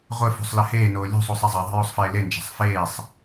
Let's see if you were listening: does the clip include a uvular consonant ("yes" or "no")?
yes